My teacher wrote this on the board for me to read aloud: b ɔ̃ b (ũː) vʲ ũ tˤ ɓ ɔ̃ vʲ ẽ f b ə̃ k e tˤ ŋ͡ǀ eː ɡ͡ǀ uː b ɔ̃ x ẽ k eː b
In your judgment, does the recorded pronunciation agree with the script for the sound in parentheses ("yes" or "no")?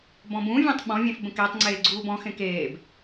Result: no